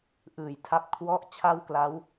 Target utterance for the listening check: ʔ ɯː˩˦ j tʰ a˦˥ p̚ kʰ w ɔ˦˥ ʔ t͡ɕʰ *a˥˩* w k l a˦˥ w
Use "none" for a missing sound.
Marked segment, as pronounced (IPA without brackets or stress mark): a˥˩